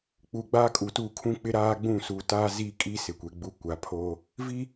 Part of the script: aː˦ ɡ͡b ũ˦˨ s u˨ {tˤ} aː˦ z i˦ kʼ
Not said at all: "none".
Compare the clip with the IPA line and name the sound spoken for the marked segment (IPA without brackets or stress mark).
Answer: t